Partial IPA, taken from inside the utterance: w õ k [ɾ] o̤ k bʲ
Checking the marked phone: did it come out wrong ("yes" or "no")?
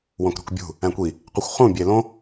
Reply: no